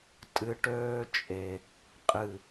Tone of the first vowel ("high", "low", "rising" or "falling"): low